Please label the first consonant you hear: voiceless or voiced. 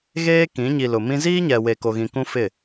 voiced